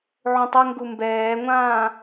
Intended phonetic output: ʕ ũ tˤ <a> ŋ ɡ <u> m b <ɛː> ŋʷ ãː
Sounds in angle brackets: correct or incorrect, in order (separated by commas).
incorrect, correct, correct